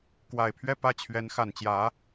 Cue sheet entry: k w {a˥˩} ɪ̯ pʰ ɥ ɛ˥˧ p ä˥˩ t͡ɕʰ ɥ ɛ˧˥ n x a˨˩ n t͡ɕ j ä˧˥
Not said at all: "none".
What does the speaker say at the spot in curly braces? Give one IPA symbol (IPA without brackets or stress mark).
a˨˩